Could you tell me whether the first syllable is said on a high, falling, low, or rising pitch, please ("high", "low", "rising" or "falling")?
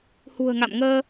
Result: low